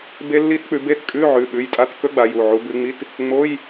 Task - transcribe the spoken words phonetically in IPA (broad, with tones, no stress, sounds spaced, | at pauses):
b e˦˥ lː i˦˥ t k͡p ʉ˨˦ b e˦˥ t kʼ ʉ˧˥˧ ʕ ʉ˩˧˩ ɓ ʉ˩˧˩ j tʼ a˧˥˧ t k ɵ˦˥ ɡ͡b a˨˦ j u˩˧˩ ʕ u˨˦ b ʉ˨˦ ŋ͡m i˧˥˧ t | ŋ͡m o˧˥˧ j